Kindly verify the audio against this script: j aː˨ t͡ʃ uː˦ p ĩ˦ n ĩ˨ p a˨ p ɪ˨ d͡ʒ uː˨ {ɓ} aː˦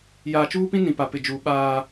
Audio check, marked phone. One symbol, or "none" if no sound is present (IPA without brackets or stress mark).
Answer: ɓ